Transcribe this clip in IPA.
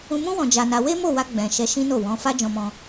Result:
ũ˧ m ũ˦ w ɔ̃˧ d͡ʒ a˧ n a˧ w e˦ m o˦˨ w a˧ ɡ͡b ɛ̃˨ ʃ ɛ˧ ʃ ĩ˦ n o˦˨ w ɔ̃˨˦ f a˦ d͡ʒ ɔ̃˦ m ɔ̃˦

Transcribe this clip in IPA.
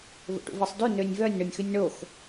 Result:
v o̰ ʈ ṵ v i sˤ d ʉ n ø nʲ v œ nʲ ɳ o nʲ x ʉ nʲ ɳ o x

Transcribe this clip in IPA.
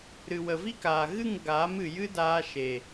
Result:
ɾ ɨ˨ w ə˨ v i˦ k aː˨ ɣ ɨ˦˨ ŋ ɡ aː˨˦ m ɨ˨ j ɨ˦ d aː˧ ʃ e˨

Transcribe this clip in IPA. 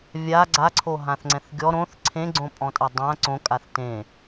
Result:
vʲ a ɡ͡ǀ a ǀʰ o ɦ ã θ ŋ͡ǀ ɛ̃ θ ɡʲ ɔ ɾ õ θ ǀʰ ẽ ɡ͡ǀ õ pʼ ɔ̃ tʼ a dˤ ã ǀ õ kʼ a θ t ẽ

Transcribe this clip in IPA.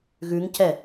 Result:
ɣ ʉ ŋ c ɛ

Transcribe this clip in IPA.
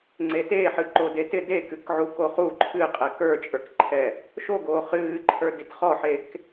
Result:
ŋ͡ǀ e t e ħ ɨ ǃ o d e t ɪ d e k ɨ k ʕ u k o χ u ǃʰ ɨ qʼ ɛ k ə˞ t͡ʃʼ ə˞ k ǃʰ ɛ | ʃ o ɡ oː χ ɨː ǃʰ ə˞ d i t χ ɔ ħ e k

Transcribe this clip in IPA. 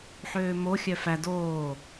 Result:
ħ øː m o xʲ œ f æ d oː

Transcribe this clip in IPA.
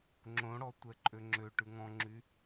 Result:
ŋ͡ǁ õ ɽ ɔ tʷ ɛ ǃʼ ø ŋ͡ǁ ø ʈ ʉ ŋ ɔ̃ ŋ͡ǁ y

